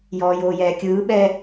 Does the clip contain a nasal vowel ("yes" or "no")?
no